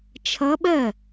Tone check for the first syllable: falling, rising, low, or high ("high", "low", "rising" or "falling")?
rising